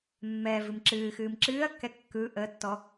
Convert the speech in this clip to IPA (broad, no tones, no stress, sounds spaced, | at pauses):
mː ɛː v ɨ m ǁ ɨː x ɨː m ǁ ɨː ɐ̯ kː ɛ kː ɯ ʔ əː tː ɔ